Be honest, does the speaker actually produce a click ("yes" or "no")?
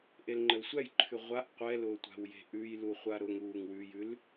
yes